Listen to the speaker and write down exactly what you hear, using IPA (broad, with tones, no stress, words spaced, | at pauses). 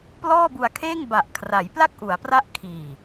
plɔː˥˩bu˧a̯kʰeː˥˩ŋ ba˨˩ʔkʰra˩˦j pla˥˩k̚ʔu˩˦a̯pra˦˥ʔ kʰiː˨˩